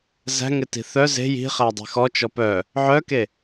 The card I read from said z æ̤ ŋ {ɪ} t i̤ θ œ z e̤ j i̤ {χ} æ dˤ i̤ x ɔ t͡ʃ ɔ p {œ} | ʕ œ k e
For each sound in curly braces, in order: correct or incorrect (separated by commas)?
correct, correct, correct